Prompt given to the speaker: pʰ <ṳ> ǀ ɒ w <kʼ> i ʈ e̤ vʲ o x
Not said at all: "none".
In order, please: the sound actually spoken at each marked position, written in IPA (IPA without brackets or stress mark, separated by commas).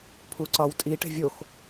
u, tʼ